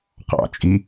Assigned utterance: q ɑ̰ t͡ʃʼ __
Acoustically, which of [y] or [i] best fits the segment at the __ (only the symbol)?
i